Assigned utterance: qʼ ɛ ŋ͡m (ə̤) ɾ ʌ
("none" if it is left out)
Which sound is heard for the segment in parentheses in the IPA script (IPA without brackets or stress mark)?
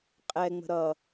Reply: ə̤